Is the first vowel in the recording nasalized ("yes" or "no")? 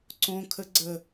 yes